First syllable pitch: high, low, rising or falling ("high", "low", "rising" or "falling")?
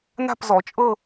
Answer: falling